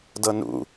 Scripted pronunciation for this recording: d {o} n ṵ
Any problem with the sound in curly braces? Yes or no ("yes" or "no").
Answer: yes